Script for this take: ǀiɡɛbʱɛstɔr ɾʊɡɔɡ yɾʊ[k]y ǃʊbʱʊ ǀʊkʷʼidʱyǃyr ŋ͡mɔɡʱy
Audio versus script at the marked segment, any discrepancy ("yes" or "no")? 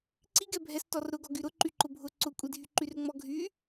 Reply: yes